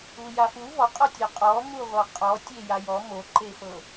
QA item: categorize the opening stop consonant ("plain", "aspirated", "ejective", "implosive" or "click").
ejective